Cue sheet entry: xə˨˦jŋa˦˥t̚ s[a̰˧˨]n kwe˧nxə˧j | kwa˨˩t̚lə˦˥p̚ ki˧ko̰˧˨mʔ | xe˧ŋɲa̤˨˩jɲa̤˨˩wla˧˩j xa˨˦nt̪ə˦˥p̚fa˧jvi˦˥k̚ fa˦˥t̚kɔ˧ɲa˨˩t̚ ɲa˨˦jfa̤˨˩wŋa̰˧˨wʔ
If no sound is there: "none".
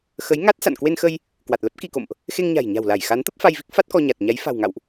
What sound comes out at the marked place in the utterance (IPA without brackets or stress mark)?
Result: a̰˧˨